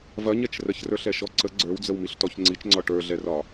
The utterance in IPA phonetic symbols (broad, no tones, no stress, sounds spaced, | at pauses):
v ɐ ɲ ɛ t͡ʃ r ə ç r ə˞ ɬ ɛ ʃ ɔ ǀ ə ɡ͡ǀ ə˞ w d͡z ə w m i ɬ t ɔ ç ŋ͡ǀ i t͡ʃ ŋ͡ǀ ɒ ʈ ə˞ ɮ ɛ r ɒ